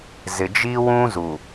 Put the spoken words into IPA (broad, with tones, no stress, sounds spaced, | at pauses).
z ɪ˨ d͡ʒ i˦ w ũ˦ z u˨